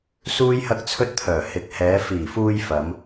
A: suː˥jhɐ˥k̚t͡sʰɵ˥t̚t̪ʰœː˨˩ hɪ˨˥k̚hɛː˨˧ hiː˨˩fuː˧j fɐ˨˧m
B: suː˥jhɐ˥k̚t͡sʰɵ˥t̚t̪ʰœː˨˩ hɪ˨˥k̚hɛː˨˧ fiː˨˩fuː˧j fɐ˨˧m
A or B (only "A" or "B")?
B